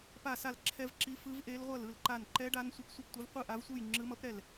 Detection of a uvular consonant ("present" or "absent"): present